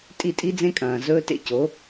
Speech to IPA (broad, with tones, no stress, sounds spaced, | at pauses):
tʼ i˦˨ tʼ i˦ d͡z ẽ˦ kʼ ɐ̃ː˨ z ɵː˦ t ḛ˧ c o˨˦